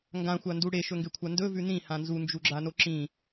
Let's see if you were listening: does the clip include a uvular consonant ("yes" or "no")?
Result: no